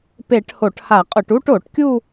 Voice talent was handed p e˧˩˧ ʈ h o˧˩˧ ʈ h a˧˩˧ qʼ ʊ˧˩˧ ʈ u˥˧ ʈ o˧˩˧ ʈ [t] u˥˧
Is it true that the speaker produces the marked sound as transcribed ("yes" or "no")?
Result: no